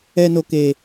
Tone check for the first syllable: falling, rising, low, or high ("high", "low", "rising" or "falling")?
high